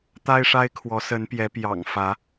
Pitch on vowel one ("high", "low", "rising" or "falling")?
high